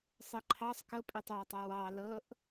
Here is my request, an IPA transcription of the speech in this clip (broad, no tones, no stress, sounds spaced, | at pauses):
sˤ ɛ ǃʰ ɑ sˤ k ɤ pʼ e tˤ w a tˤ a w ɑ l ɤ ʔ